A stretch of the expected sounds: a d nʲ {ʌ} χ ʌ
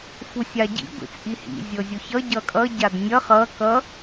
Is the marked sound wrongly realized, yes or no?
no